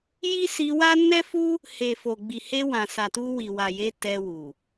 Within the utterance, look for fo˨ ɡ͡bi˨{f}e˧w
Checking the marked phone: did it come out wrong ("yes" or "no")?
yes